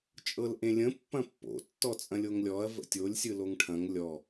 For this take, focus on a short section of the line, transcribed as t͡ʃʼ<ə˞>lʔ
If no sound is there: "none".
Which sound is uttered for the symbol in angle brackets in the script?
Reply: ɤ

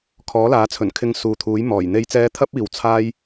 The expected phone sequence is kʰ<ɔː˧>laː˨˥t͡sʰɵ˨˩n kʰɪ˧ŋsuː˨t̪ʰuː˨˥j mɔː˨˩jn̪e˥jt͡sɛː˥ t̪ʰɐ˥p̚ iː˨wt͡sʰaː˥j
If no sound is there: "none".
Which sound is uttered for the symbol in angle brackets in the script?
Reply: ɔː˨˥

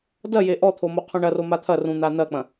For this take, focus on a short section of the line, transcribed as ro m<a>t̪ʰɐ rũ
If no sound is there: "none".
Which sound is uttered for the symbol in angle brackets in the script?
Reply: a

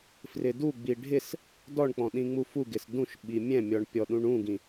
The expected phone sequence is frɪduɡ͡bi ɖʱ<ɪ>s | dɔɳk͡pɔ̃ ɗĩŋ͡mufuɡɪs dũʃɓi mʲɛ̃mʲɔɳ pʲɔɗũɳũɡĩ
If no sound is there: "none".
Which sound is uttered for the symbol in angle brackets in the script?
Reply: ɪ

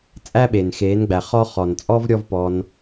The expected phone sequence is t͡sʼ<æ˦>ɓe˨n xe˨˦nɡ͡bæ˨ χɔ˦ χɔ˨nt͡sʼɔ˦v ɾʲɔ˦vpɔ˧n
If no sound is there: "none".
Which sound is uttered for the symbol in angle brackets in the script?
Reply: æ˦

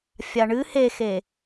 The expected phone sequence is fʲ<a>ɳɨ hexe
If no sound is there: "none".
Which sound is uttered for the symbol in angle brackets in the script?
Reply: a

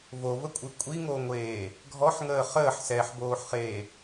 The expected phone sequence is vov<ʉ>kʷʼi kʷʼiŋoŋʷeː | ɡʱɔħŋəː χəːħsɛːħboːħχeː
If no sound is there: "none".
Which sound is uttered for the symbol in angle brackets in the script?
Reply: ə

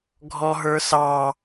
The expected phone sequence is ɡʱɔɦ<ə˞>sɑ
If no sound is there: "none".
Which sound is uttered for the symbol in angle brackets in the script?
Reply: ə˞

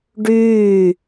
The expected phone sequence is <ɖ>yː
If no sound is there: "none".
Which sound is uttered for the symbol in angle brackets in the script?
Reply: ɖ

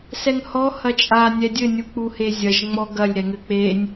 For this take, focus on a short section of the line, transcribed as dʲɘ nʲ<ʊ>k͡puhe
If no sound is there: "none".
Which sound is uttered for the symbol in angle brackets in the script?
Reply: u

